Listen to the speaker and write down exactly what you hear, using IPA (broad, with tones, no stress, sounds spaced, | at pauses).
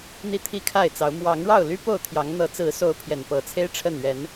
n̪ i˥˨ t̪ʰ i˥˨ kʰ a˥˨ ɪ̯ t͡s ɑ˨˦ ʊ̯ m w ɑ˨˦ ŋ ɻ ɑ˥˨ ʊ̯ l y˦ p o˥˨ ʊ̯ t̪ʰ j ɑ˨˦ ŋ n̪ ɤ˨˦ t͡s ɹ̩˨˦ s o˨˦ ʊ̯ pʰ j ɛ˨˩ n p ɤ˨˦ t͡sʰ e˦ ɪ̯ ʈ͡ʂʰ ə˥˨ n ɥ ɛ˨˦ n